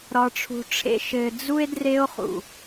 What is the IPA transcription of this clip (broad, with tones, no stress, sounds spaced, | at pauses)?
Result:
ɾ ɒ˨ ʈ͡ʂʰ ṳ˨ ʈ͡ʂʰ ḛ˨ ʃ ɘ˨ d͡z u˦ e̯ d r e˦ o̯ χ ṵ˨